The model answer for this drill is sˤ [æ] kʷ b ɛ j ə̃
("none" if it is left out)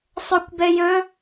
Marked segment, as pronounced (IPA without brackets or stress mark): œ